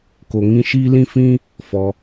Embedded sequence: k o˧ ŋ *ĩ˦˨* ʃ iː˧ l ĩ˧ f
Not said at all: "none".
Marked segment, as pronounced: ĩ˦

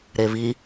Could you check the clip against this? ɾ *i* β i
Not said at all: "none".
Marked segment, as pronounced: e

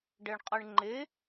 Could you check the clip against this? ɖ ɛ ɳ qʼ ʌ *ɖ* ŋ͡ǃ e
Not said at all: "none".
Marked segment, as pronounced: ɳ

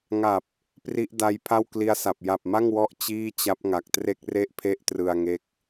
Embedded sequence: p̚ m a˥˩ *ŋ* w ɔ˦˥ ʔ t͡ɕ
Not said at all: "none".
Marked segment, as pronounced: ŋ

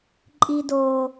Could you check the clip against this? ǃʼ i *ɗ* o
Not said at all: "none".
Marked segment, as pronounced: d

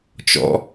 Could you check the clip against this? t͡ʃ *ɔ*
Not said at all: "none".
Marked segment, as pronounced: ɔ̰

